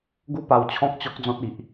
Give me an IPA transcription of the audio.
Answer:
ɡ u˥˧ p a˧ w t͡ɕʰ ɔ̃˦ k̚ t͡ɕ ɔ˦ k̚ d͡z ɔ̃˦ t̚ i˨ ʔ

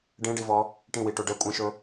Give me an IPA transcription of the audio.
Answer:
ɖ ẽ ɖ i v ɔ | ʈ ĩ w i ʈ o ɖ ə kʷʼ ẽ ʃ ɵ

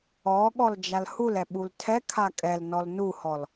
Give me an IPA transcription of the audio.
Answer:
ɔ ɠ ɔ l d͡ʒ a l h u l ɛ ɓ u l tʰ ɛ kʰ a kʼ ɛ l n ɔ l n u h ɔ l

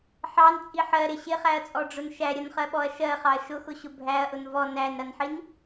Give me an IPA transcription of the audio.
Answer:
ħ ɑ n t͡sʼ i ħ ɜ ɾ ɪ ɕ ɪ χ æ ɐ̯ t͡sʼ ɔ ɖ͡ʐ ʊ n ʃ æ ɾʲ ʌ n χ ɜ ɓ ɔ ɐ̯ ʃ ɜ χ ɑ ɐ̯ ʃ ʊ x ʊ ɕ ʊ bʱ æ ɐ̯ ʔ ʊ n v ɔ n æ n ɾ ʌ n ħ i n

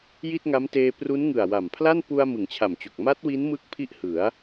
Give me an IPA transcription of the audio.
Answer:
j i˥˩ t̚ ŋ a˦˥ m t eː˧ p r u˦˥ n ŋ ɯ˨˩ a̯ w a˨˩ m pʰ l a˥˩ n p u˧ a̯ m ɯ˩˦ ŋ t͡ɕʰ a˨˩ m t͡ɕ o˨˩ k̚ m a˦˥ t̚ w i˦˥ n m ɯ˦˥ k̚ pʰ i˥˩ ʔ h ɯ˩˦ a̯

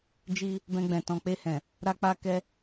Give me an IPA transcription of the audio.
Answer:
d͡ʒ i˧ | b ɛ̃˧ ɡ͡b ɛ̃˨ t ɔ̃˨ k͡p e˧ h ɛ̃˨ | ɾ a˧ k͡p a˧ k ɛ˧

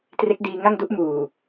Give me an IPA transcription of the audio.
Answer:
t r e˦˥ k̚ d iː˧ ŋ a˥˩ ŋ d u˦˥ ʔ m uː˨˩

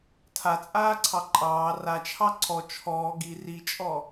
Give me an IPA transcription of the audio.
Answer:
tʰ a t͡sʼ aː ǀʰ ɑ ǃʼ ɑː r a t͡ʃʰ ɑ ǀʰ ɔ t͡ʃʰ ɔː ɡ i r i t͡ʃʼ ɔ

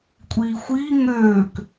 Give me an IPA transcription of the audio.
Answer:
kʷʼ iː xʷ iː ŋ øː k

